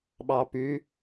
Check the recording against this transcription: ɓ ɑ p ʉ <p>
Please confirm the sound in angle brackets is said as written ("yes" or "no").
no